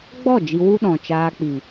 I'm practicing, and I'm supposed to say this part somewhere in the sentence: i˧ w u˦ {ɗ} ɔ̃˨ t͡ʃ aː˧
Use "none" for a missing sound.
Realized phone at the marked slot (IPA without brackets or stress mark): ɗ